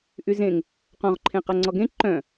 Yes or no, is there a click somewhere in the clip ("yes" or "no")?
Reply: yes